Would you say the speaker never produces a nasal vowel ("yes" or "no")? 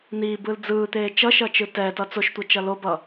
yes